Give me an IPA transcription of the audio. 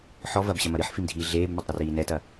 ħɔ vɐbɕɐmɐ ɾɨħfimdʱiː ɮeːbmɐtˤɾɘriː nɛtɐ

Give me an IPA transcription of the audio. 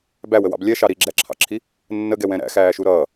bæwəwɑ̰b lʲɛʃɑ ɾiɡ͡ǁæǁʰɑ̰ǁʰi | nːəɡɛwɛ̃ ɾæ̰xæːʃu ɾʌː

